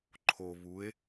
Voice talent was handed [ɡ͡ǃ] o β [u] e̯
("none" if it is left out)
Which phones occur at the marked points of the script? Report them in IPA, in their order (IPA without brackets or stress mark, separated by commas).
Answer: ǃʰ, u